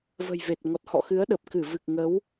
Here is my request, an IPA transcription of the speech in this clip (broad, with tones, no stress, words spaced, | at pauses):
və̤˨˩jve˨˩t̚ ŋɔ˨˩t̚hɔ̰˧˨ xɨ˨˦ə̯ɗə˨˩p̚ kɨ˧˩vɨ˨˩k̚ ŋə˨˦w